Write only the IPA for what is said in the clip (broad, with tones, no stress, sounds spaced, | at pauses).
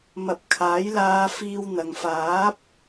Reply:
m ɐ˨˥ p̚ kʰ aː˨˥ j l aː˧ f iː˧ w n̪ ɐ˨ ŋ f aː˨˥ p̚